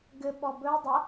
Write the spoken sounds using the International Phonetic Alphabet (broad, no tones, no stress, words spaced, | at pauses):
ɡɘɓɔ bɵə̯ dˤə